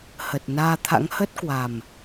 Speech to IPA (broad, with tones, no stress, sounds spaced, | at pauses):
h ə˨˩ t̚ n aː˧ t̪ʰ a̰˧˥ ŋ h ə˦˥ t̚ k w a˨˩ m